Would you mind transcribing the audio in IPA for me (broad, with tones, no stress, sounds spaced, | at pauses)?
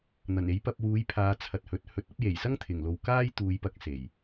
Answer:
n̪ ɐ˨˩ n e˨˥ j p ɐ˧ p̚ w uː˨˥ j pʰ aː˨˧ t͡sʰ ɐ˨ t̚ h ɵ˨˥ t̚ h ɵ˧ t̚ ɐ˨˥ p̚ j e˨˩ j s ɐ˥ ŋ t̪ʰ ɪ˨˩ ŋ l o˨ w k aː˥ j t̪ uː˨˧ j p ɐ˨˥ k̚ s e˨˩ j